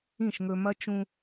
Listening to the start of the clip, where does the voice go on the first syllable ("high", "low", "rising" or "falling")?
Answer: falling